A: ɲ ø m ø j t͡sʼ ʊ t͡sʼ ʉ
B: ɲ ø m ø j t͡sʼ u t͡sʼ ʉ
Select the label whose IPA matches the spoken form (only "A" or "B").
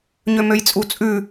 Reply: B